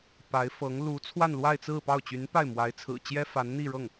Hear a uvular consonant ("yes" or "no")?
no